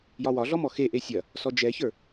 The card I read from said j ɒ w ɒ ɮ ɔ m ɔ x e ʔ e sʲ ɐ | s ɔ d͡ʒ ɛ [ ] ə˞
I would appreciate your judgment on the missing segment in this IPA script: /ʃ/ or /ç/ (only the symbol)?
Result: ç